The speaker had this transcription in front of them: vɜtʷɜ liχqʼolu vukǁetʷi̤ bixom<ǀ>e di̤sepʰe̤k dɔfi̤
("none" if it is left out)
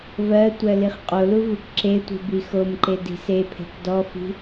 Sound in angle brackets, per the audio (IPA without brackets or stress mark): ǃ